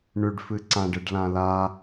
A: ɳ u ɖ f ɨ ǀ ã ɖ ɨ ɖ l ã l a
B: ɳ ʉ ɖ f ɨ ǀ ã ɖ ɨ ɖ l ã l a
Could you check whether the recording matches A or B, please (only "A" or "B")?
B